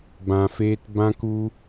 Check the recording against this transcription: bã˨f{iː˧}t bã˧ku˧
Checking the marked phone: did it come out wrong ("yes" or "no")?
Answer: yes